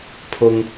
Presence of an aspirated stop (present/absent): present